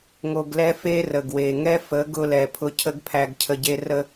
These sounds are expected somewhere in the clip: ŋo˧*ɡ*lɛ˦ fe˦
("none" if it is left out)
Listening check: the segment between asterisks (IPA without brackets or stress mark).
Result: ɡ